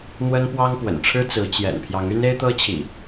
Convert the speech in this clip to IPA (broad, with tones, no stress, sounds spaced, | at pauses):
n̪ w ə˦ n p w ɑ˦ ŋ p w ə̰˨˩ n ʈ͡ʂʰ ɻ̩˦ t͡s ɹ̩˨˦ t͡ɕ j ɛ̰˨˩ n pʰ j ɑ˨˦ ŋ y˦ n e˦ ɪ̯ t̪ ɤ˦ t͡ɕʰ ḭ˨˩